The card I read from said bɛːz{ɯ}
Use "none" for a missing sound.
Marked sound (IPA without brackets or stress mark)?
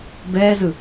ɯ